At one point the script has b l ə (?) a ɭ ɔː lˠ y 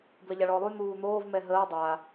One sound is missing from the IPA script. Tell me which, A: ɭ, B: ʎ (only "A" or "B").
B